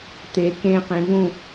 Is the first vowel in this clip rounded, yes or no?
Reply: no